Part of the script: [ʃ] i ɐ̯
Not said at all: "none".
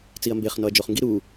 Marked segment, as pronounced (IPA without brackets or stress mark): t͡s